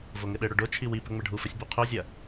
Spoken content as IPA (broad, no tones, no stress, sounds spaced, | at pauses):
v o ŋ ɘ ɗ ɘ ɽ o ɖ o t͡ʃʰ i w i p ɘ ŋ͡m ɘ ɖʱ u f ɘ sʲ b u qʰ o zʲ ɐ